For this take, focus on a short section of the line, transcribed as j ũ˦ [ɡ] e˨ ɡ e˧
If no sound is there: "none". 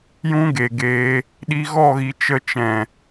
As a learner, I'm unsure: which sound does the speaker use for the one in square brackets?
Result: ɡ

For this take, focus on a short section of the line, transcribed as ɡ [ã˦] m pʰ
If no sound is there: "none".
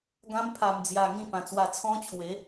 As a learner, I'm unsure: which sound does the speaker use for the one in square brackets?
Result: ã˦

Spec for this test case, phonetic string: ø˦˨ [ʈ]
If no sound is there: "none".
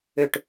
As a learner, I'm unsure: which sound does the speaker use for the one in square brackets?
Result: ʈ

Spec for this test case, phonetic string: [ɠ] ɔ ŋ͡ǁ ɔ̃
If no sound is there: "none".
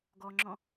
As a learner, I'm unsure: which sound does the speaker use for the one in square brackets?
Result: ɡ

